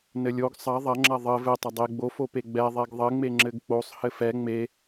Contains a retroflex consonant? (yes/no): no